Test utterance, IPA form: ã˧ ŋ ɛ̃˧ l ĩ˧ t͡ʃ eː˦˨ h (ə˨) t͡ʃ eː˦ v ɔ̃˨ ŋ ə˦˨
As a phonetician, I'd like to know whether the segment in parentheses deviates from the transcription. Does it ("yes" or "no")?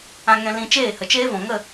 no